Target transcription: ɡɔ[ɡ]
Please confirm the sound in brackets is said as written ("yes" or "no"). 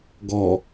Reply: no